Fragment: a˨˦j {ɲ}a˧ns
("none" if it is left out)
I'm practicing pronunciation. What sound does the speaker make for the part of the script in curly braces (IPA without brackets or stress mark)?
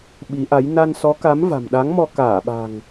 n